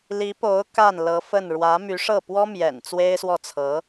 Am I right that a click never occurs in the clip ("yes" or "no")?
yes